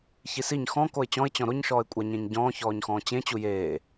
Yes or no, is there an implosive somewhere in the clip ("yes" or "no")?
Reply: no